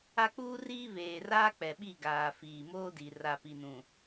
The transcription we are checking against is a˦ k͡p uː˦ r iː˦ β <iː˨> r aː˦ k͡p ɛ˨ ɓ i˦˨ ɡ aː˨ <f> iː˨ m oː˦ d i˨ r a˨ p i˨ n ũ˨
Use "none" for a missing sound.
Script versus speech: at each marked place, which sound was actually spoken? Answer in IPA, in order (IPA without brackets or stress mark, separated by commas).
eː˨, f